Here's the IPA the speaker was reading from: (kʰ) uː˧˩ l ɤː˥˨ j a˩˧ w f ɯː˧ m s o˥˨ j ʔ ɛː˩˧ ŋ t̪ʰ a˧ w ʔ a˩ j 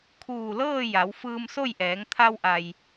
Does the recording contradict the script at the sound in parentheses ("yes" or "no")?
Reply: no